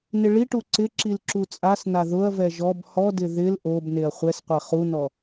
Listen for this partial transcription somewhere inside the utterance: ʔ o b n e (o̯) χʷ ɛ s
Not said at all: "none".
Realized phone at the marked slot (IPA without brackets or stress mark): ɐ̯